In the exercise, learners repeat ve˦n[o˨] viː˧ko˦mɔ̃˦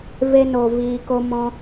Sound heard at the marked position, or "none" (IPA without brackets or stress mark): o˧